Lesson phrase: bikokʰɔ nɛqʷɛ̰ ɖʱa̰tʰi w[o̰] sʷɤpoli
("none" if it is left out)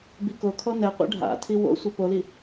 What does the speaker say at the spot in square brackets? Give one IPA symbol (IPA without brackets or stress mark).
o̰